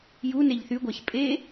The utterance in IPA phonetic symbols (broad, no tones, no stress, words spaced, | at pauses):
juneʎ θyɡʷæç pʼe